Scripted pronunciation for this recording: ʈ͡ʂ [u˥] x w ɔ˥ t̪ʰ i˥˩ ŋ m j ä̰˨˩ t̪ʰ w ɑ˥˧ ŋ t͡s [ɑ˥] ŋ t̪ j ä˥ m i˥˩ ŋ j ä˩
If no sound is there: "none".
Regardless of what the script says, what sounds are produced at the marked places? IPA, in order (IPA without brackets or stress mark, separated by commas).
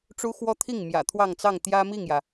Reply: u˥, ɑ˥˩